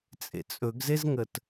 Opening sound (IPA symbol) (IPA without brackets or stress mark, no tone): t͡sʼ